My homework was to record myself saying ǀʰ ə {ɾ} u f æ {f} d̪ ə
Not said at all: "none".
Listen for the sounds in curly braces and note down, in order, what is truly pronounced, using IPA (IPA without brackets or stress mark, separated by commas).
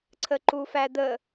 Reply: ǃ, none